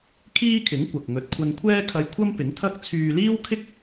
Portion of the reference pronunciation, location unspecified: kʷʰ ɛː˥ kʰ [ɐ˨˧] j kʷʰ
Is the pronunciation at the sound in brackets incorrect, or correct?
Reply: incorrect: ɐ˧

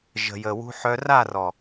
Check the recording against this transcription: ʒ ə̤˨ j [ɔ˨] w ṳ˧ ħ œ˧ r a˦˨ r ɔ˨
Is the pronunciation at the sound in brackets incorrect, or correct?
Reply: incorrect: ə˨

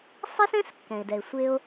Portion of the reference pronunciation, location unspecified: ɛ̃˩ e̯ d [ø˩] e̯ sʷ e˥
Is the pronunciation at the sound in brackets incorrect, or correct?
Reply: incorrect: ɛ˩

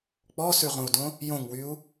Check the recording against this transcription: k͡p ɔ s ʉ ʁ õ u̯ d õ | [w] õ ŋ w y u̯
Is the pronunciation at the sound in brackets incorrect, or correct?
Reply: incorrect: j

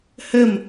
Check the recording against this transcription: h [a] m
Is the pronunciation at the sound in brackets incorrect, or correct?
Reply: incorrect: ə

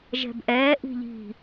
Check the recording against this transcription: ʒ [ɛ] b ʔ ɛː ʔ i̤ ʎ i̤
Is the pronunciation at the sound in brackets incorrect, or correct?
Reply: incorrect: ɛ̤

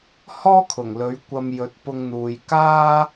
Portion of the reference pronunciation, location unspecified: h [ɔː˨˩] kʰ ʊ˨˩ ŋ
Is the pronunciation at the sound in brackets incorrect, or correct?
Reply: incorrect: ɔː˥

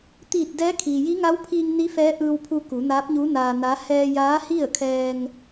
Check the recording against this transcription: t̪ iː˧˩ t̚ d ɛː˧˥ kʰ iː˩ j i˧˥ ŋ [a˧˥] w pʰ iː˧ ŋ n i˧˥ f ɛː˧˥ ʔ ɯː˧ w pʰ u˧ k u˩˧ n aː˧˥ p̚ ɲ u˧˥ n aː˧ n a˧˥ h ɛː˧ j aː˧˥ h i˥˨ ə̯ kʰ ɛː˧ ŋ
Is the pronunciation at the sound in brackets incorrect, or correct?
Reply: correct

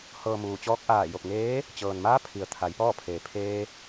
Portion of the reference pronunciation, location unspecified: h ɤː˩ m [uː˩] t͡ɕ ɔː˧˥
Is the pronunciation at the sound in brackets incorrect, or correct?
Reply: correct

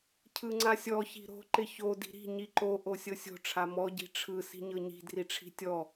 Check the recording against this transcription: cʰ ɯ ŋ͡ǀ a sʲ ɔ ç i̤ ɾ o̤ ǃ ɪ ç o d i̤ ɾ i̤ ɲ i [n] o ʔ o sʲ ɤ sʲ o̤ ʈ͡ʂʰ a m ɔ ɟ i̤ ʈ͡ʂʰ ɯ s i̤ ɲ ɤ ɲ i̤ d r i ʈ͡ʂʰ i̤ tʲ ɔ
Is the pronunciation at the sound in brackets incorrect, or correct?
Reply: incorrect: ǃ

